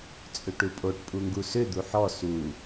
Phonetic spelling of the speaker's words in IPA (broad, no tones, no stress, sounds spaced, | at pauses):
t͡sʼ ʏ ʈ u pʼ o ʈ pʼ u ŋ ɡ u s ʏ d̪ u ħ ɔ s u